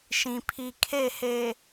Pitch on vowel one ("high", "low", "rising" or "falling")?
low